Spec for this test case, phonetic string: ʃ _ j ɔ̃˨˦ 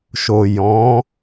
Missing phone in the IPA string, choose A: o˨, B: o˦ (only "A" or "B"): A